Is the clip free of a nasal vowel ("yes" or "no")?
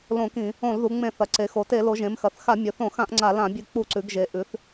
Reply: no